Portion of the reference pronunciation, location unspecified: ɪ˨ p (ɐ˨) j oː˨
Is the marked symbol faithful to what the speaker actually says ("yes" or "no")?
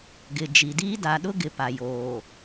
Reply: no